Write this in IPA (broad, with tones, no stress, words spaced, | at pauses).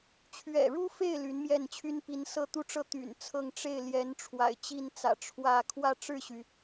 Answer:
t͡ɕʰɥɛ̰˨˩ɻu˥fe˥˩ɪ̯ ly˧˥nmjɛ˥˩nt͡ɕʰy˥n pi˧˥nsɤ˥˧ t̪u˥˧ʈ͡ʂɤ˥˩ t̪y̰˨˩nt͡sʰɤ˥˧ŋ ʈ͡ʂe˥˩ɪ̯ljɛ˧˥n ʈ͡ʂʰwa̰˨˩ɪ̯t͡ɕi˥˩nt͡sä̰˨˩ ʈ͡ʂʰwä˥˧ kʰwä˥˧ ʈ͡ʂɻ̩˥˩ɕy˩